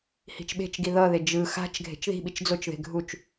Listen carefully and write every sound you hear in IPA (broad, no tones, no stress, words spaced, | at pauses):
hi̤t͡ʃɓe̤t͡ʃɡi ðʌðe d͡ʒɯ xa̤t͡ʃ ɡʱe̤t͡ʃði̤ɓit͡ʃ d͡zot͡ʃðe̤ ɡʱut͡ʃ